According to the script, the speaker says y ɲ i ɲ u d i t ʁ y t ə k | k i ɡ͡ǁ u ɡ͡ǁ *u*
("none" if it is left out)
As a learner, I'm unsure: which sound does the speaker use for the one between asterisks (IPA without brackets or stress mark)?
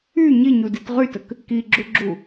u